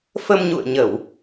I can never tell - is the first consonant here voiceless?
yes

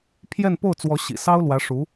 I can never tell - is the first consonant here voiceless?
yes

